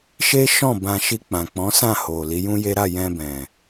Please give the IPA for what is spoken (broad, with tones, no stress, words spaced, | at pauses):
ʃe˦ʃɔ̃˦˨ bã˧ʃi˧ k͡pã˨k͡pɔ̃˨˦sã˦˨ho˨ li˨˦jũ˦je˦ ɾa˦˨jɛ̃˧bɛ̃˨